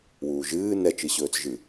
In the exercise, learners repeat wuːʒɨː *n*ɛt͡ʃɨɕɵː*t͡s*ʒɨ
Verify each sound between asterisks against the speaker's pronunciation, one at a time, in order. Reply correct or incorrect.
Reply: correct, correct

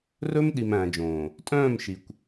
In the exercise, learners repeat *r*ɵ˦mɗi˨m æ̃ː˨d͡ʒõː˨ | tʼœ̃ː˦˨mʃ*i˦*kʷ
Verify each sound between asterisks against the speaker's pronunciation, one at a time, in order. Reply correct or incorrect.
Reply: correct, incorrect

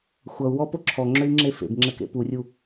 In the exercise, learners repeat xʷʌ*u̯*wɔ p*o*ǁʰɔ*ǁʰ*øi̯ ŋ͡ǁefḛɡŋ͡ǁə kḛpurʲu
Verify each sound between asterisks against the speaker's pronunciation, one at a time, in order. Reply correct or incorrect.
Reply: correct, correct, incorrect

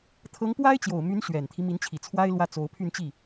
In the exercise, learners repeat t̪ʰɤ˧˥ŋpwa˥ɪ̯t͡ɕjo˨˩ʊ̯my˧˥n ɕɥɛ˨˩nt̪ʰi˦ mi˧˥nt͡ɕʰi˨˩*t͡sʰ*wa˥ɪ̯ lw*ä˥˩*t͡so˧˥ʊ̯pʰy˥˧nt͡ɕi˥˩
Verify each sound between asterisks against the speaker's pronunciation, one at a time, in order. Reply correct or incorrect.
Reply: correct, correct

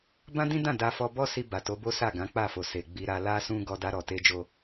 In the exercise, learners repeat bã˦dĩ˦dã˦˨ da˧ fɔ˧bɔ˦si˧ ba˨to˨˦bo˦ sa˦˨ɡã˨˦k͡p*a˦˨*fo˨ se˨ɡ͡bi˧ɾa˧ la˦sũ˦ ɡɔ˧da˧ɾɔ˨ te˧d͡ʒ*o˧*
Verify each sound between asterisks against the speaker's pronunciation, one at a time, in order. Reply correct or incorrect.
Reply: correct, correct

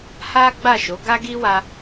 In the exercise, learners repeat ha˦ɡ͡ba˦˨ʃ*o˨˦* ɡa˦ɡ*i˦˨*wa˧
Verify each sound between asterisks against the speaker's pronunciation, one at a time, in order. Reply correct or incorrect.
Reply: correct, incorrect

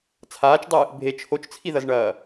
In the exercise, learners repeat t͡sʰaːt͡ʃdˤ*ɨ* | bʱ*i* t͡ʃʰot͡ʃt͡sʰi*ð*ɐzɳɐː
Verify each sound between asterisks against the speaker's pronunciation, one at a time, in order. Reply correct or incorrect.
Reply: correct, incorrect, correct

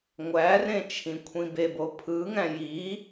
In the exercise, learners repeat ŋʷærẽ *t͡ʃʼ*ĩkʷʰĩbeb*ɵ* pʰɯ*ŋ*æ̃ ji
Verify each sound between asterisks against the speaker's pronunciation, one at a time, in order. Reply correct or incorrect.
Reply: incorrect, incorrect, correct

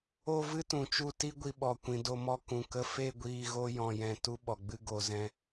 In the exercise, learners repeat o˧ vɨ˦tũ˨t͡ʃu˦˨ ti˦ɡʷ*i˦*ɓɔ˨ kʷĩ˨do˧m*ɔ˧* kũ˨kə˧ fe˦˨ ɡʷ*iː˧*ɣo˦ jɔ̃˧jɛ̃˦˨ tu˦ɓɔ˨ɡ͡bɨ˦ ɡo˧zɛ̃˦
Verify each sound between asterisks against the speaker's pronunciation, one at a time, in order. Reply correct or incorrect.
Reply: incorrect, correct, correct

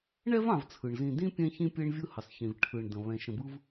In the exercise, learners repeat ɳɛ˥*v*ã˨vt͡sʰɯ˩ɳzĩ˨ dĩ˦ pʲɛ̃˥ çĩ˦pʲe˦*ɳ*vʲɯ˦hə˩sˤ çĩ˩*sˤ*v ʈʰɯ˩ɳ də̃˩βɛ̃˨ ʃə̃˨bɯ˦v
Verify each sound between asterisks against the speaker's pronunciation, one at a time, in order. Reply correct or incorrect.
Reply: correct, correct, incorrect

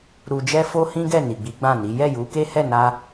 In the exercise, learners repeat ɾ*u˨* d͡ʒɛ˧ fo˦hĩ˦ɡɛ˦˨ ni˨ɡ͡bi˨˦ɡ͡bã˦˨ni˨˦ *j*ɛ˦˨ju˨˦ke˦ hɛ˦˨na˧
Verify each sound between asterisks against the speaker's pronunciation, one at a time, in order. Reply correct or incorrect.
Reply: correct, correct

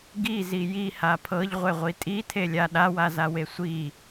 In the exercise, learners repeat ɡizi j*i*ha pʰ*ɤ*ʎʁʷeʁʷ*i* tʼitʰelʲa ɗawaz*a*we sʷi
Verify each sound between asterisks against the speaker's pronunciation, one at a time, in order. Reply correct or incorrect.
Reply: correct, correct, correct, correct

